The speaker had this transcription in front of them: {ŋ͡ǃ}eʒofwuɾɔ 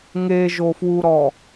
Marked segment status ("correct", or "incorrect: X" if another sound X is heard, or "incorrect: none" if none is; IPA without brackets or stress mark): incorrect: ŋ